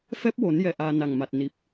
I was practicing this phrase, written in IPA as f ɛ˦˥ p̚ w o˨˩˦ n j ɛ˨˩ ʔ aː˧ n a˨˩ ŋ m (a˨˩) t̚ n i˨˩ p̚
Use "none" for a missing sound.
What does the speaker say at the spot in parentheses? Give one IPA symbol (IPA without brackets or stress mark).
a˨˩